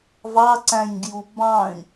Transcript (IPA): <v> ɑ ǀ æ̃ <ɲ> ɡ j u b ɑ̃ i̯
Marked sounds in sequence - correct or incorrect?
correct, correct

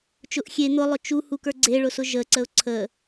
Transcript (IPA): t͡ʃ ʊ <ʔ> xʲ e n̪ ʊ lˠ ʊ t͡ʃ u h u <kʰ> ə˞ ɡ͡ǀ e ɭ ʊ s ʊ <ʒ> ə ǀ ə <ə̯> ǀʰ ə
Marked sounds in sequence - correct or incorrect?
correct, incorrect: k, correct, incorrect: ʊ̯

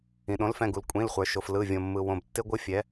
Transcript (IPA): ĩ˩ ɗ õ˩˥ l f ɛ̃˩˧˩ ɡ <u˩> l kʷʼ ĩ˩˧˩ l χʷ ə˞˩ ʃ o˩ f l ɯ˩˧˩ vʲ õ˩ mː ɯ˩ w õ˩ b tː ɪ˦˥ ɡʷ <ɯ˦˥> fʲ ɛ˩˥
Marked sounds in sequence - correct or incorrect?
correct, correct

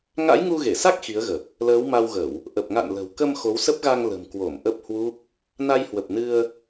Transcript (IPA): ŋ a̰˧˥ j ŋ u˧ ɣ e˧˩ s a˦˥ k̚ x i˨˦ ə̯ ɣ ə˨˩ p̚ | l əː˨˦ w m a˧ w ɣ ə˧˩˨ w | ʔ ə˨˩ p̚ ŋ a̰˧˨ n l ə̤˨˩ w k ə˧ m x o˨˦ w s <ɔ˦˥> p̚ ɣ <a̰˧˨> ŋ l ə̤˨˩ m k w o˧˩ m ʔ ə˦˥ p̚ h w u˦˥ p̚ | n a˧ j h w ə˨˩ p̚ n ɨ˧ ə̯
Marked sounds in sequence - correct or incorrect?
incorrect: ə˦˥, incorrect: a˧

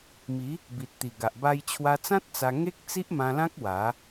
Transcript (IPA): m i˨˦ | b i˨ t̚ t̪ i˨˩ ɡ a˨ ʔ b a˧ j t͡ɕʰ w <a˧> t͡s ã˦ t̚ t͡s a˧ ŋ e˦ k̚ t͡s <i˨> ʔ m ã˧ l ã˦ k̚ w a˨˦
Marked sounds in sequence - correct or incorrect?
correct, incorrect: i˦

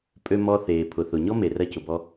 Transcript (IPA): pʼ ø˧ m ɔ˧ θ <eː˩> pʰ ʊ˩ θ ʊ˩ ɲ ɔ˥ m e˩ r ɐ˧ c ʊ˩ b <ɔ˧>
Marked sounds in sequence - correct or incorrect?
correct, correct

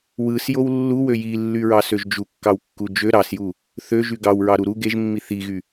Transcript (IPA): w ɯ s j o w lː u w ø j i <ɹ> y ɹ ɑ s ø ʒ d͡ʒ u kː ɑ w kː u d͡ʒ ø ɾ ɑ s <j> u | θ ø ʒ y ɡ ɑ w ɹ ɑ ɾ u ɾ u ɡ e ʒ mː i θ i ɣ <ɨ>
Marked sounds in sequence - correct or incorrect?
incorrect: lː, correct, incorrect: y

